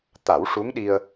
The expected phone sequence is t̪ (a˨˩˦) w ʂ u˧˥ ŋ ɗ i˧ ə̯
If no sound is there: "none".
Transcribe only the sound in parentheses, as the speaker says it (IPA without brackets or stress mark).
a˨˩˦